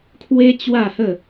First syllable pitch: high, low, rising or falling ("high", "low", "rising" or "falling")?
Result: high